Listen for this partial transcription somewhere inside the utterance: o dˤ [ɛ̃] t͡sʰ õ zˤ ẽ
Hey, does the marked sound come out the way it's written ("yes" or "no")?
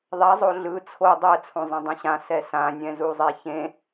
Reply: no